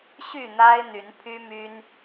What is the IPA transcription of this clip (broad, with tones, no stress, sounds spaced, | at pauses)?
ɕ y˥˨ n̪ a˦ ɪ̯ n̪ y˨˦ n pʰ y˦ m y˦ n